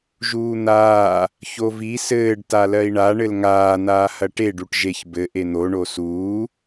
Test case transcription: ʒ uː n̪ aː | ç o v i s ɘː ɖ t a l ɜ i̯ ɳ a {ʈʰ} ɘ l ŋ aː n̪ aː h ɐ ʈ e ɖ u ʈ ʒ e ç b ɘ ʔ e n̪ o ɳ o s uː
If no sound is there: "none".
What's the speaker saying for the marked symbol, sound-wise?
ɳ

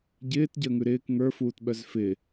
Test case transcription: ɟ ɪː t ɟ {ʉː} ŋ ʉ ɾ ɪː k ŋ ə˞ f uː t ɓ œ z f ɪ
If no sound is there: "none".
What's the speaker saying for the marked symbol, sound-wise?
əː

